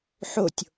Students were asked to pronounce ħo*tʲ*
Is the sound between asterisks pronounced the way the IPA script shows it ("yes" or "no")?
yes